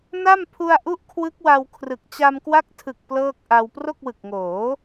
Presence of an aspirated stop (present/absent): present